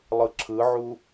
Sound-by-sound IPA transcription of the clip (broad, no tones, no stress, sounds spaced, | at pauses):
lˠ ɯ ǁʰ ɯ ʕ u